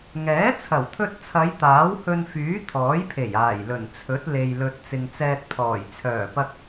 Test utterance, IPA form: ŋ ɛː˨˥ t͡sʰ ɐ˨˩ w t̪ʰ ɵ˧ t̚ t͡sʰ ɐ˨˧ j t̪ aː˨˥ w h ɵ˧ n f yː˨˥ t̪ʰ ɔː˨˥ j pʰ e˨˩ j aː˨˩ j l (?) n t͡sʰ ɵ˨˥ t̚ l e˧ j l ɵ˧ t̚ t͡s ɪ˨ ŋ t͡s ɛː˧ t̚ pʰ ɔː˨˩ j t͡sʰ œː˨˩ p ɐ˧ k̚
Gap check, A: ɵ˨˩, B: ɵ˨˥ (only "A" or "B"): A